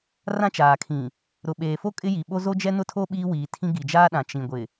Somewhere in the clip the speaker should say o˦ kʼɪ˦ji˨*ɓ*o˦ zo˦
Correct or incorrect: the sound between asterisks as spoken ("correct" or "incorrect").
correct